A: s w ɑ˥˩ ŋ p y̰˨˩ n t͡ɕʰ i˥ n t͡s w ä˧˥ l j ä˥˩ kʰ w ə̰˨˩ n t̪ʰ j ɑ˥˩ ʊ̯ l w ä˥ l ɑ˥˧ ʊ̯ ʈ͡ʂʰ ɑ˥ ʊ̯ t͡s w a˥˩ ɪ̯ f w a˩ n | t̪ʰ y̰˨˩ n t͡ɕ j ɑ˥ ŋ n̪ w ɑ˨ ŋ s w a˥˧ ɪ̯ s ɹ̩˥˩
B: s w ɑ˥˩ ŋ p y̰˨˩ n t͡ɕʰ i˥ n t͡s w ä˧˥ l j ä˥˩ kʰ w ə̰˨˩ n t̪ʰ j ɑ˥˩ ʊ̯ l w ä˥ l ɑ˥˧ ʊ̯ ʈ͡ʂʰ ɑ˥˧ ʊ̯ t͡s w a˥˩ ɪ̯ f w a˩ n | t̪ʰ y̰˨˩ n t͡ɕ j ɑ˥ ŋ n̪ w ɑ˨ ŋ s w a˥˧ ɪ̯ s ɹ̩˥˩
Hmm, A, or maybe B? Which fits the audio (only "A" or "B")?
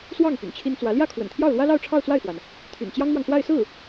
B